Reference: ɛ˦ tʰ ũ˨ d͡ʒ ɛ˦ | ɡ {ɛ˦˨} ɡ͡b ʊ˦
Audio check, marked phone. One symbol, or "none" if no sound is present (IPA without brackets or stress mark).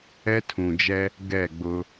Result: ɛ˦˨